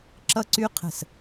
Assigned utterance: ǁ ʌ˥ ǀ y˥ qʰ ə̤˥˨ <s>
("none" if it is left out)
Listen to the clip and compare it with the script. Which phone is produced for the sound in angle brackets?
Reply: s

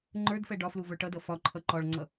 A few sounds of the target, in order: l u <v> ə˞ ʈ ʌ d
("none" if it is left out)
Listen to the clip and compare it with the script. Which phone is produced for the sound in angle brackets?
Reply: v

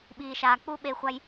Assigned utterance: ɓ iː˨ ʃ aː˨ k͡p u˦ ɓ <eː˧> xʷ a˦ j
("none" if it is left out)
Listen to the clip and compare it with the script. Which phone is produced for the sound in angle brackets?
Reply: eː˧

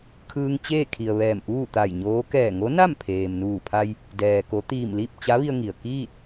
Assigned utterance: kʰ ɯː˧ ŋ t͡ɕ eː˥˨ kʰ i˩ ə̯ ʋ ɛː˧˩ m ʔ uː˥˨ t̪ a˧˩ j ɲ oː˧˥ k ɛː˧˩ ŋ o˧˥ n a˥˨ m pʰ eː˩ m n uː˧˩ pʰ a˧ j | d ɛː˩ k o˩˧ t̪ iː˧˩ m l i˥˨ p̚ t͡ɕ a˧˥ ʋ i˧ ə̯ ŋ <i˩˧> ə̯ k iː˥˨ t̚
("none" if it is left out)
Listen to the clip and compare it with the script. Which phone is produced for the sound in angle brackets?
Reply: i˩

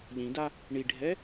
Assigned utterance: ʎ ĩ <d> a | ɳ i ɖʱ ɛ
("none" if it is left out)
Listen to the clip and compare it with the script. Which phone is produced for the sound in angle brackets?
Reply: d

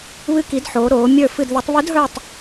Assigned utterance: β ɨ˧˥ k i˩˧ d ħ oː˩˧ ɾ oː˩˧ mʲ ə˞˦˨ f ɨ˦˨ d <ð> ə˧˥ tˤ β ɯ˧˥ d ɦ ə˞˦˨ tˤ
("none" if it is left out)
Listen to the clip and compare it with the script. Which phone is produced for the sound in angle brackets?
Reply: ð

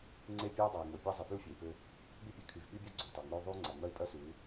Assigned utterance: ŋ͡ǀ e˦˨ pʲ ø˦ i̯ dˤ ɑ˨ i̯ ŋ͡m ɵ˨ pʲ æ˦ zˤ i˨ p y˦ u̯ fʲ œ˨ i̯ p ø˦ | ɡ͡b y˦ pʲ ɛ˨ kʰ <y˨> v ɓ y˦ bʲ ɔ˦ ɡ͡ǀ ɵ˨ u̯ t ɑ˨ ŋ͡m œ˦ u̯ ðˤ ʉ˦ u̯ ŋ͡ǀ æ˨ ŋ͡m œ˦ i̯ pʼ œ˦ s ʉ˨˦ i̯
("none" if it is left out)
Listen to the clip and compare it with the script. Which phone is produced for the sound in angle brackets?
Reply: y˨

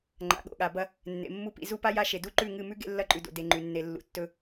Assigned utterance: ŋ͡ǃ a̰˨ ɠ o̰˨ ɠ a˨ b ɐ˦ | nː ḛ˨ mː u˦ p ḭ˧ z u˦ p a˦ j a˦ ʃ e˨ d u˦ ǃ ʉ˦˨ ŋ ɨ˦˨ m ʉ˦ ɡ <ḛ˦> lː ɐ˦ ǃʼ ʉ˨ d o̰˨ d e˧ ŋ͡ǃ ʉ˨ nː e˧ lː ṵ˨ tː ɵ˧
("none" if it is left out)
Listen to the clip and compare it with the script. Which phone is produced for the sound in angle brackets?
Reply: ḛ˦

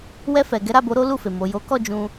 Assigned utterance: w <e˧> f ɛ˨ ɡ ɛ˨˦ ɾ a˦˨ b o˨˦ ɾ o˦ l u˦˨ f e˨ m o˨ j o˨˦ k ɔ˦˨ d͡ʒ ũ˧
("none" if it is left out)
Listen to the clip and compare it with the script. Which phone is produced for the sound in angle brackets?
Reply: ɛ˧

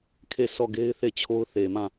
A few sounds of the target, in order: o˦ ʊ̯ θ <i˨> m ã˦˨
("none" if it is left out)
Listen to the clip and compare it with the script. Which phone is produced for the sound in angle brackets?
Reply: e˨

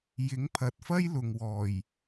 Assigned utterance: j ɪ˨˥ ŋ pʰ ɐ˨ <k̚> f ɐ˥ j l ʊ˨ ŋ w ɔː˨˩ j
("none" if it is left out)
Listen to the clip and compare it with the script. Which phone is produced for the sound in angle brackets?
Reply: t̚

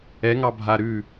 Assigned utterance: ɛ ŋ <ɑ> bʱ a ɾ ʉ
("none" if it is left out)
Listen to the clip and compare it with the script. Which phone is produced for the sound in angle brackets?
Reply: ɑ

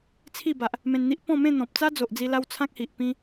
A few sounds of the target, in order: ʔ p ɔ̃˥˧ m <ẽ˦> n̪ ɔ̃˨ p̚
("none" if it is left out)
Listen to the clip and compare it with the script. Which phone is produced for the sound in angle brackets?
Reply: ẽ˥˧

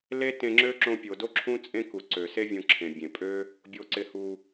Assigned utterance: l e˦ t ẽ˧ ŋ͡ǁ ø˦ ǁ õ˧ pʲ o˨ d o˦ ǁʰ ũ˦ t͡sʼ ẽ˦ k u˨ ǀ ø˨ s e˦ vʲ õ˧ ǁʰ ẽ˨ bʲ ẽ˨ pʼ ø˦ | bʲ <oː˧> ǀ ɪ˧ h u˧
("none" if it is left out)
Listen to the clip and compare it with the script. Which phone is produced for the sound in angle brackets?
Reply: o˧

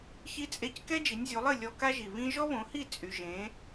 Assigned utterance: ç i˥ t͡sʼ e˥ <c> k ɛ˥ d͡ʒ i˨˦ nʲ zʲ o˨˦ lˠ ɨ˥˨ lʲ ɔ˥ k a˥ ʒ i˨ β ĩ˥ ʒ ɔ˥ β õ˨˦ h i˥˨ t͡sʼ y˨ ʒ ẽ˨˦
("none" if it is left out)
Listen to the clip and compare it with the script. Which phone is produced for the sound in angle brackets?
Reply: c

